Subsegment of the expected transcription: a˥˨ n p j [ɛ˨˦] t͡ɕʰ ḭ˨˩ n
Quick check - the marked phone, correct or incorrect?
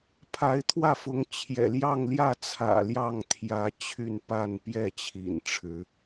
incorrect